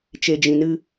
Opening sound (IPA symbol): t͡ʃ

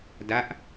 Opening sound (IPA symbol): d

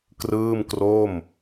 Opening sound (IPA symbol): k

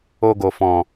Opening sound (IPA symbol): o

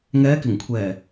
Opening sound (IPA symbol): ŋ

